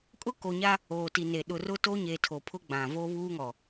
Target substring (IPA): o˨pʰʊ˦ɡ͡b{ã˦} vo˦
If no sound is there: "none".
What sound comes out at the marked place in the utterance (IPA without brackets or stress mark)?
ã˨